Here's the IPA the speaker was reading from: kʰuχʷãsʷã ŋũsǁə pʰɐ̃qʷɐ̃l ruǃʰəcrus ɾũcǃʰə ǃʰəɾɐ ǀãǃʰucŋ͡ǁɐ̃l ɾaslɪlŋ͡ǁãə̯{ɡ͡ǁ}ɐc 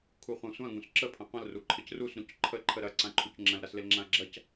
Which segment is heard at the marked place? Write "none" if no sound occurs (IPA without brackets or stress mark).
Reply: ɡ͡ǁ